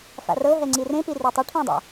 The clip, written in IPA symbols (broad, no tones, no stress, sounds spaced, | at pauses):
f a̰ r ɤ ɦ ɛ ŋ͡ǀ i r ẽ p i r i tˤ ɯ ʈʰ õ dˤ a̰